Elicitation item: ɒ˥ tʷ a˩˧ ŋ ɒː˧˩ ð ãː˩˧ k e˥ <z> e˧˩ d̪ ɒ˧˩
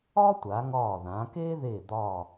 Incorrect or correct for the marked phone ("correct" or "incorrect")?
incorrect